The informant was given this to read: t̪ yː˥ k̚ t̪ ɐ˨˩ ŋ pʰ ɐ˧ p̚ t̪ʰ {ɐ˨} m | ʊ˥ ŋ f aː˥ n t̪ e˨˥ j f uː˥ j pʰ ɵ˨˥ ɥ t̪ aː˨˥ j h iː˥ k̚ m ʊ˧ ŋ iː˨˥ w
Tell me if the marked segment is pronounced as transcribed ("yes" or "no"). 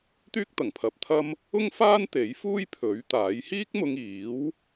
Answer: no